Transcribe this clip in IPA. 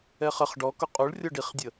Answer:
ɛ χ ə χ ɖ ɔ k ʊ qʼ u ɭ rʲ ɔ ɖ i χ dʲ ə

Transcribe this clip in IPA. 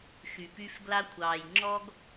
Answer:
ʃ y˨ p y˦ f ɡ l a˦ kʷʰ ɑː˨ j ŋ͡ǁ ɔ˦ ɡ

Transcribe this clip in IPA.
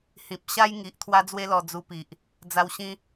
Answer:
h ĩ˨ p̚ ɕ a˦ j ŋ i˨ ʔ t̪ʰ w a˦ d͡z w e˦ l ɔ˧ d͡z u˧ p i˨ ʔ | d͡z a˧ w ɕ ĩ˦

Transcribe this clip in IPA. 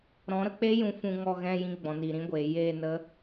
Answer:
ɾ ɔ̃˨˦ ɾ ə˧ k͡p e˦ j ũ˧ f ũ˧ ŋ ɔ˧ ɣ ɛ̃˧ j ĩ˧ ɡ͡b ɔ̃˨ n i˨ ɾ ĩ˧ ɡʷ eː˨ j eː˦˨ n ə˦

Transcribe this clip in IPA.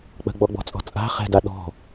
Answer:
k͡p ə̤ ɡ͡b ɔ ɡ͡b ɔ̤ t͡sʼ ɔ̤ t͡sʼ a̤ χ ɛ̤ d a ɗ ɔ̤

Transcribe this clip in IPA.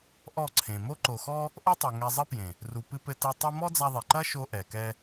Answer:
ʔ ɔ˦˨ ǀʰ ẽ˨ m o˧ ǃ o˨ x ɔ˧ | ʔ o˦ tˤ ɛ˨ ŋ ɛ˧ zˤ ɘ˦ p j ẽ˨ | r u˨ p ɨ˧ p ɘ˧ t e˧ tˤ u˦ m ɔ˦ d͡z a˧ ðˤ e˨ ǃ ɐ˦ ʃ o˦ ʔ ɛ˨ k ɛ˦

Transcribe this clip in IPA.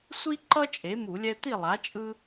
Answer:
sʷ i˦ ǃ ʌ˦ t͡ʃʼ e˩˥ m u˧˩˧ lʲ ɛ˦ t̪ i˥˨ lˠ a˩˥ t͡ʃʼ ɯ˦

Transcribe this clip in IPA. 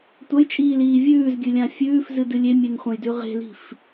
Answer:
tʷ ɐ j t͡ʃʼ iː l iː vʲ ʉː z ɡʲ ɨ lʲ ã fʲ ʉː f z ɨ d ɨ lʲ e mʲ e n χʷ ɐ̃ j d ʉ ʁ e̤ l i̤ f

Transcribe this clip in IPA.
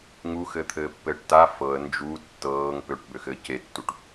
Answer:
ŋ u x ɘː t̪ʰ ɘː pː ɘː ʈ t a f ɤ ə̯ n d͡ʒ u tː ɤː ŋ p ø ʈ b ø x ɘː c e tː u ʈ

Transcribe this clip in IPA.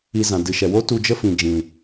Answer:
i˧ z ã˨ d ɨ˨ ʃ ɛ˨ w o˦ t u˧ d͡ʒ ə˦ f ĩ˨ d͡ʒ ĩ˨

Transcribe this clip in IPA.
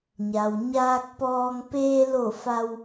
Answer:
ɲ a˩ w ɲ aː˧ k̚ p ɔː˧ ŋ p eː˧ l o˧˩ f a˧ w

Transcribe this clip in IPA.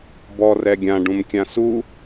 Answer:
b ɔ r ɛ ɡʲ ã ɖ ũ m kʲ ã s u

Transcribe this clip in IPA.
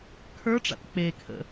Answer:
kʰ ə˞ ʈ͡ʂ a̰ t k͡p e kʰ ə̰

